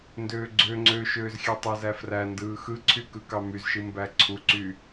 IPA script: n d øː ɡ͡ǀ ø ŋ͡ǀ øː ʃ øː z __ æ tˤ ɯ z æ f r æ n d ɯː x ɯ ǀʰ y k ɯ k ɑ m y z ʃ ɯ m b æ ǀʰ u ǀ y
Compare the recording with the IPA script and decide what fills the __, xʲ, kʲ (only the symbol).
xʲ